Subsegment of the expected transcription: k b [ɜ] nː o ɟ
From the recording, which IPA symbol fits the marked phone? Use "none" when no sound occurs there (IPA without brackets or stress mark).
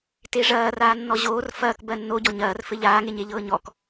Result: ɜ